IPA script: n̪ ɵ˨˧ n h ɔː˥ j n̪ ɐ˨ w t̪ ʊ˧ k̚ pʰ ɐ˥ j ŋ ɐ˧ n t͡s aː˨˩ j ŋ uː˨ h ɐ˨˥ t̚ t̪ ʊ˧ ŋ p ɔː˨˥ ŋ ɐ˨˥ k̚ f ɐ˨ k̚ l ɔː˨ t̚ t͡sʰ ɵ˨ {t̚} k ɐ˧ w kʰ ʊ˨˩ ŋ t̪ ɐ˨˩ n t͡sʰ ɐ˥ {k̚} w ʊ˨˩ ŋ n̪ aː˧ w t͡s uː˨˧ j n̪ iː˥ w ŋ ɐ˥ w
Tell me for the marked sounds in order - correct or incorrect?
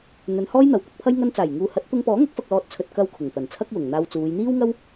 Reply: correct, correct

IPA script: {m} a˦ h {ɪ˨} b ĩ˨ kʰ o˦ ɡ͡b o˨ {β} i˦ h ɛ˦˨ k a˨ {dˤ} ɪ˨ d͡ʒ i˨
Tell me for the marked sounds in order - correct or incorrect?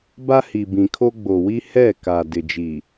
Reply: incorrect: b, incorrect: i˨, incorrect: w, incorrect: d

